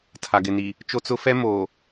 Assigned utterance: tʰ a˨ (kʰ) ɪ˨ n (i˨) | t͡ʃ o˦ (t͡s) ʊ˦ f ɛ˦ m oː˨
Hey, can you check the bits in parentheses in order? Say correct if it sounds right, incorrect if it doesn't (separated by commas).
incorrect, correct, correct